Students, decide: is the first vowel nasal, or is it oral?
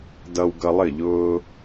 oral